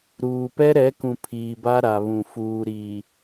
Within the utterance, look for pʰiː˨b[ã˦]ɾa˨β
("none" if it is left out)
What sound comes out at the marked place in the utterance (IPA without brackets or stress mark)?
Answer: a˦